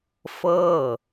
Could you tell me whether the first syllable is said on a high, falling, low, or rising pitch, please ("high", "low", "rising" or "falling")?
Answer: falling